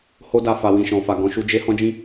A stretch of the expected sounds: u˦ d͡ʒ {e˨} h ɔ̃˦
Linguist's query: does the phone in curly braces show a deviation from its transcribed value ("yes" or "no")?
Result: yes